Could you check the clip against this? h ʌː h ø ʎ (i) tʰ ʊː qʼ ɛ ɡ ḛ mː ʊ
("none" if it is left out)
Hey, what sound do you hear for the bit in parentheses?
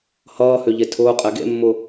e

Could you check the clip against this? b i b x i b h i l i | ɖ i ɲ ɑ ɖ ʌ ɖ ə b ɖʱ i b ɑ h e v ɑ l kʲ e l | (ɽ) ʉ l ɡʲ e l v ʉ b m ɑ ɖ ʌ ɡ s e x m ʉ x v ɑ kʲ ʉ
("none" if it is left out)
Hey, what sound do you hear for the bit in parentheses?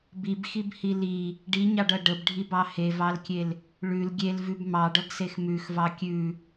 ɭ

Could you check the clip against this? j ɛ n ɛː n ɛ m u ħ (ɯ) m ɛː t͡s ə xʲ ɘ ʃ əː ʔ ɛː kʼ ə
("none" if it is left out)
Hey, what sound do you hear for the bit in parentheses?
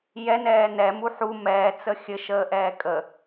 u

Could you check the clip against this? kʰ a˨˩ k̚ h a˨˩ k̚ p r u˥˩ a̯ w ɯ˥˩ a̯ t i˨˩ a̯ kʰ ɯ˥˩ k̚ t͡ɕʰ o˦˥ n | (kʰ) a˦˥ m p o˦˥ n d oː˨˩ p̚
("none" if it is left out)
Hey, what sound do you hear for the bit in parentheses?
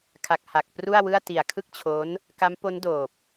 k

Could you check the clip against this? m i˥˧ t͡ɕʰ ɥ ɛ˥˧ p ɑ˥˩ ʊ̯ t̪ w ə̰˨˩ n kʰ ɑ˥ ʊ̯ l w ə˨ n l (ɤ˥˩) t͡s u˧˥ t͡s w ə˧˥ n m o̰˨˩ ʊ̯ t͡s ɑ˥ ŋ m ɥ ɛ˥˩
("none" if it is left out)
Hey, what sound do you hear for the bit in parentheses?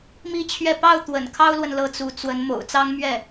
ɤ˥˩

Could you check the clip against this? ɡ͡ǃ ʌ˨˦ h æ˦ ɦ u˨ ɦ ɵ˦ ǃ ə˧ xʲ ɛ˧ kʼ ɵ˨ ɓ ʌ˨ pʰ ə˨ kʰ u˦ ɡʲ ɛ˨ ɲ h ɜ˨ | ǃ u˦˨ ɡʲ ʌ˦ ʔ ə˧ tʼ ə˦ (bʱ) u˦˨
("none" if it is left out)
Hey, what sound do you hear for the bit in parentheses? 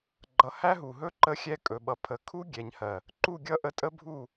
bʱ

